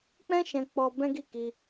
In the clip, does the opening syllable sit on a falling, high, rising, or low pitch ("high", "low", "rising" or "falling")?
high